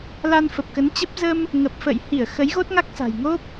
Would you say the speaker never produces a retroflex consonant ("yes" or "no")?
yes